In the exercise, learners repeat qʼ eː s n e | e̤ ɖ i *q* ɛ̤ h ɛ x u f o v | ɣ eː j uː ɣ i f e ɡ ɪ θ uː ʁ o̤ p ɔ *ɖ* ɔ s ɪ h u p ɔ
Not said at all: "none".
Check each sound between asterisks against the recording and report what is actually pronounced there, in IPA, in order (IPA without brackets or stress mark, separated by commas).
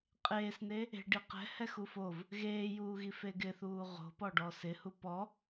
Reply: q, ɖ